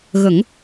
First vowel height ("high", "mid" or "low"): mid